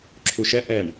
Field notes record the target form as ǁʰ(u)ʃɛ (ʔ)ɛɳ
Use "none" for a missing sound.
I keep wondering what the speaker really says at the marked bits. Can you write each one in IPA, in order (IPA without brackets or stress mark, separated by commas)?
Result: u, ʔ